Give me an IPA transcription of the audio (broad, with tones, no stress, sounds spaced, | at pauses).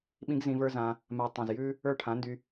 ɓ ĩ˦ ɡ z ĩ˧ v ə˞˦ z ã˧ | m a˧ tˤ õ˨ z j ʉ˦ | ə˞˦˨ ʈʰ ã˨˦ n d y˧